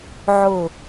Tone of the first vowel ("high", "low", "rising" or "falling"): falling